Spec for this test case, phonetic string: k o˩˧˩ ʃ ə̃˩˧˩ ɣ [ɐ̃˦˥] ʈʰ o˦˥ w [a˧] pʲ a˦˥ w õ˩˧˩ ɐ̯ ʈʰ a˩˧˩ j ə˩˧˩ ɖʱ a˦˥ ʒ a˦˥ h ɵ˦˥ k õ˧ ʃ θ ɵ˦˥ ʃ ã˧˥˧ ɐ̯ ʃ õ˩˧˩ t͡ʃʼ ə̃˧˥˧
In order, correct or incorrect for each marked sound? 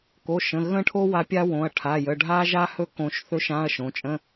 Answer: incorrect: ə̃˦˥, correct

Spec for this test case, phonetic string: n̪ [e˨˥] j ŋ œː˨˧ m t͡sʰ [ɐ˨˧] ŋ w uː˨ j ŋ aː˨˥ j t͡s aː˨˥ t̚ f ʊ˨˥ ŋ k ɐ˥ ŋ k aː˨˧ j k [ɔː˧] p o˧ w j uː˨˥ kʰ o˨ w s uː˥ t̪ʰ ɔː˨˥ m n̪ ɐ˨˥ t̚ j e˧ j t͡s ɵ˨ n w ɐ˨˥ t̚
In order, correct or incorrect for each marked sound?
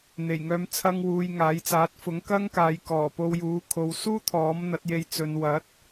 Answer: incorrect: e˨˩, incorrect: ɐ˧, incorrect: ɔː˨˩

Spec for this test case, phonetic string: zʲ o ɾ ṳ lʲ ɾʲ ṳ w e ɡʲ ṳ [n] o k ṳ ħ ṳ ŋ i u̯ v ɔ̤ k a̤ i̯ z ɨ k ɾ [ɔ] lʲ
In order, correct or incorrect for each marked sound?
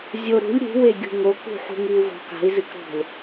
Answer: incorrect: ŋ, incorrect: ɔ̤

